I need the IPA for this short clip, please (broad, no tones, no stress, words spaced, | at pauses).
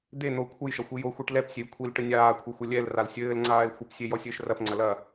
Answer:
d̪e n̪o kʷʰɘjʃɐ xʷijoxʷiʈ lɛpsʲej kʷʰil ʈɘnʲaːkʷʰɨ xʷɐlʲɛlral sʲɘːlŋ͡ǀaːe̯ xʷɘpsʲe jɔsʲɘːʃrɐpŋ͡ǀɐ lɐ